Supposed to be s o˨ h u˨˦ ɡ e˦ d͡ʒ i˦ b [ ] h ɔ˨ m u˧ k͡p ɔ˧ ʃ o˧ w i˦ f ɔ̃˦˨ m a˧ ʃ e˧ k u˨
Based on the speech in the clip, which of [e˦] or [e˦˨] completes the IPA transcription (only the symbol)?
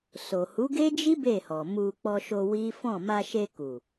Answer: e˦˨